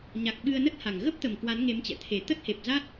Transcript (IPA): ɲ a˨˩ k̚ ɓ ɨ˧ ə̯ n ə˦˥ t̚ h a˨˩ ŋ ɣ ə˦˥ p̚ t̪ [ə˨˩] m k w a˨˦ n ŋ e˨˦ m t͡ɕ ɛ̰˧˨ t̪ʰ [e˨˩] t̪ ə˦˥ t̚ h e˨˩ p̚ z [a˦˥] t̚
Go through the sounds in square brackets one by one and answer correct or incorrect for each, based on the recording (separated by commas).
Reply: correct, correct, correct